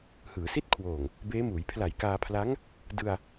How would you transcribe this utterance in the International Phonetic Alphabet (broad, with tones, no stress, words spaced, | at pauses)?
hɯː˩˦si˥˩t̚ kʰwoː˨˩ŋ | beː˦˥muː˩˦j pʰla˨˩jkaː˧pʰla˦˥ŋ | dɯ˧a̯